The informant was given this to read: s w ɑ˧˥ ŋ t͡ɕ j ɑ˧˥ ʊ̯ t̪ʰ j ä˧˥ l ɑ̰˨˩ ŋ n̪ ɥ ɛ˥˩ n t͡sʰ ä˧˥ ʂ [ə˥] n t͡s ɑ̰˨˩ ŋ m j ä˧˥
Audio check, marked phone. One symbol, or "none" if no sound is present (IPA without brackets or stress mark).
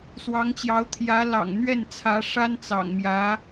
a˥